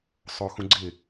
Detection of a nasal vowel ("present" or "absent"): present